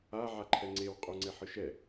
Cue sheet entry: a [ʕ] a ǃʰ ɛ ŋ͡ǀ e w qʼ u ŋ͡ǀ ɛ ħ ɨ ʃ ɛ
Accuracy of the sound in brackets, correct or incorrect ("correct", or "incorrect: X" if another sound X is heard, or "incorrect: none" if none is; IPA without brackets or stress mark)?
correct